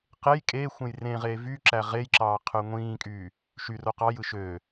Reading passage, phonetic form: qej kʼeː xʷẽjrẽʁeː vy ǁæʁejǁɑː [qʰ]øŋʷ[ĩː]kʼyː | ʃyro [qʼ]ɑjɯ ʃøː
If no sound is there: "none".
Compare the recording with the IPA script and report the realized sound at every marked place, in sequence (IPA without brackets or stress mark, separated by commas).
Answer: qʰ, ĩː, q